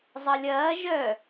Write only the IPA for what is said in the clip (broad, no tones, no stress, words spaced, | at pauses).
zˤɐlʲɐː ʒœ